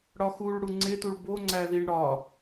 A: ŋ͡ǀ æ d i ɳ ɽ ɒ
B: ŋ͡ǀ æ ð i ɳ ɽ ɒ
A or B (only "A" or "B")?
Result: B